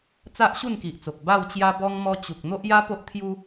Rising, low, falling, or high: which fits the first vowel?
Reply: high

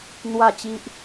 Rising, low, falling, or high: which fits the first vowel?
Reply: falling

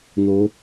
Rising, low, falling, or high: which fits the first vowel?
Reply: rising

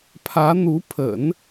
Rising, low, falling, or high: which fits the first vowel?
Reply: rising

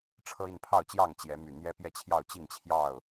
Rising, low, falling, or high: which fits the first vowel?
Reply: high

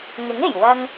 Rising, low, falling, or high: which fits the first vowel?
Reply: rising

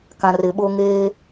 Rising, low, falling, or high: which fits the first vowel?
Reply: low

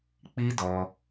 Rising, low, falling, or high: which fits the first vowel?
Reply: high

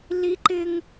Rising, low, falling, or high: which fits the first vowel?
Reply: high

